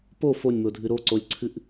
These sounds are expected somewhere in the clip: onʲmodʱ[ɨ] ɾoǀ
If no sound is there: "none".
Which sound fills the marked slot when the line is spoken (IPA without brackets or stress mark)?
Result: ɨ